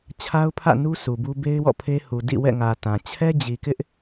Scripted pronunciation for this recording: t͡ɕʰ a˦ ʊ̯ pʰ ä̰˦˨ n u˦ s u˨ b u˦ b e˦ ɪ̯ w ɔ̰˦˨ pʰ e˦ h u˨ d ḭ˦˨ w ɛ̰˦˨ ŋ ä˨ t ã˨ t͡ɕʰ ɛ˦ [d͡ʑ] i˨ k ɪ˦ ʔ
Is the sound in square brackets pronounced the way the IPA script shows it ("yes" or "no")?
yes